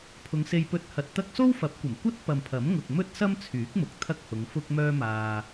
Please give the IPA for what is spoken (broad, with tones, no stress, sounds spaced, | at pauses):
pʰ ʊ˨˧ ŋ s e˧ j p ɵ˧ t̚ h ɐ˨ t̚ t̪ ɐ˥ k̚ s o˥ w f ɐ˨˥ p̚ kʷ ɐ˨˩ m kʷ ɐ˥ t̚ p ɐ˨ m pʰ ɐ˨˥ m ŋ ʊ˨ k̚ m ɵ˥ t̚ s ɐ˥ m t͡sʰ yː˨˥ k̚ m ʊ˨ k̚ t̪ʰ ɐ˥ k̚ h ʊ˨˧ ŋ f ʊ˥ k̚ m œː˥ m aː˧